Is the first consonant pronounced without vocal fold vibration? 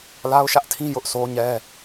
no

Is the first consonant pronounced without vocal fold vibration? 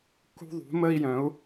yes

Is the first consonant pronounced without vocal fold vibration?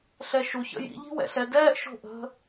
yes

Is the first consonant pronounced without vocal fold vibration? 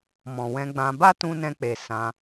no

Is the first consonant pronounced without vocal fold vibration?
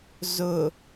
no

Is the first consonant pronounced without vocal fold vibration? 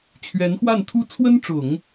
yes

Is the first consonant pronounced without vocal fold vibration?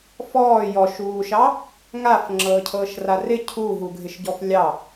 yes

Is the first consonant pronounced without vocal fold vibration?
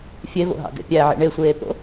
yes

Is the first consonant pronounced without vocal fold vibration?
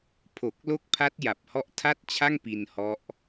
yes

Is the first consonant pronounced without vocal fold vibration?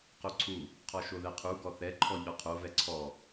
yes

